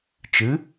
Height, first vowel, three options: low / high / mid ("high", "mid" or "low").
high